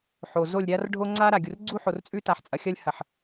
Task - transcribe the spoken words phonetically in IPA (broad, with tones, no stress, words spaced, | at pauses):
ħo˨ zo˦˨lʲɾʲa˦rɖʱo˦ ŋ͡ǀa˦ɾa˨ ɡʲu˨rɡ͡ǀu˦ ħo˨rt͡sʼʉ˦ta˨ħt͡sʼɐ˨ xʲɐ˦lʲhɐ˨ħ